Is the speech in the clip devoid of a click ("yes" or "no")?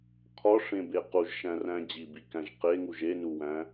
yes